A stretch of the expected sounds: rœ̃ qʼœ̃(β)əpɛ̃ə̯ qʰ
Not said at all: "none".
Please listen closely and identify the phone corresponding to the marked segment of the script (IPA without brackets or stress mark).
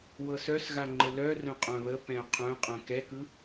β